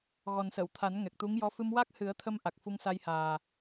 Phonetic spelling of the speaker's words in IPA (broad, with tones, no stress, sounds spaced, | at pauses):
ɣ ɔ˨˩ n s ə˨˩˨ w t̪ʰ a˨˩˦ n ŋ ɛ˨˩ k̚ t̪ u˧˥ ŋ j ɔ˧˥ f ɨ˧ m w a˦˥ k̚ h ɨ˨˩˦ ə̯ t̪ʰ ə˧ m ʔ a˨˩ k̚ f u˧ ŋ s a˧ j h aː˨˩